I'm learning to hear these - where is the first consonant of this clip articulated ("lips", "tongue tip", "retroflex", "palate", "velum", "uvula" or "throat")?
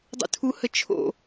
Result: tongue tip